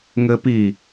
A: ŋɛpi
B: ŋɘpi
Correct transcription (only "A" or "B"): B